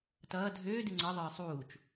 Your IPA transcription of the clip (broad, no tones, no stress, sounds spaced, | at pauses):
t ʌː dʱ øː d ɨ ŋ͡ǀ ʌ ðˤ ɯː sˤ uː t͡ʃ